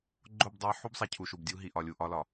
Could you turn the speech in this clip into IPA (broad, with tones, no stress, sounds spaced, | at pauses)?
ɡ͡ǃ o˦˨ b dˤ a˦ ħ u˦ b sˤ a˨ cʰ u˨ ʃ u˨ b dʲ u˦ ɦ i˨ ʔ ɒ˨ lʲ u˨ ʔ ɒ˦ l ɒ˨